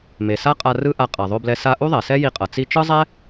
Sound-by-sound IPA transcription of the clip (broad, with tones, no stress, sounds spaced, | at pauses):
m e˩ s a˥ qʼ a˧ r ɯ˥ ʔ a˧ qʼ a˩ ðˤ o˧ b l ɛ˧ s a˧ ʔ u˥ ðˤ ɛ˩ s ɛ˥ j i˧ qʼ ʌ˩ t͡s i˧ t͡ʃ ɯ˥ zˤ ɛ˥